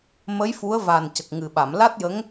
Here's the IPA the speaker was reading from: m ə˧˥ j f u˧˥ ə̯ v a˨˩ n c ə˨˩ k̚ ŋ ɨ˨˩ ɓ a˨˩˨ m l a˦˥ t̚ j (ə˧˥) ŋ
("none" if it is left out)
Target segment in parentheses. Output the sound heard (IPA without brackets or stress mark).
ə˧˥